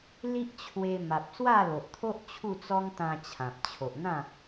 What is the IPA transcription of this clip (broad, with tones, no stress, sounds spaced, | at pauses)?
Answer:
l i˦ ʔ t͡ɕʰ w e˧ m a˨ p̚ s w a˥˧ l o˨ ʔ t̪ʰ o˦ ʔ t͡ɕʰ u˥˧ t͡s ɔ˦ ŋ t̪ ã˧ t͡ɕʰ ã˨ p̚ t͡ɕʰ o˨ ʔ n̪ ã˥˧